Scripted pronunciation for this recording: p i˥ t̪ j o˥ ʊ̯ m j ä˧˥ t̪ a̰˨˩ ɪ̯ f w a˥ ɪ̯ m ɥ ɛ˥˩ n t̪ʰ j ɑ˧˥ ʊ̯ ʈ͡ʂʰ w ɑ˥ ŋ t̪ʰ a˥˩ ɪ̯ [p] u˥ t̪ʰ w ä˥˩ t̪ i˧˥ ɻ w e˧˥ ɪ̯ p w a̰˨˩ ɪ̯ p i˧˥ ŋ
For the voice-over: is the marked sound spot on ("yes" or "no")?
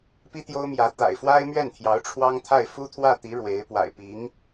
no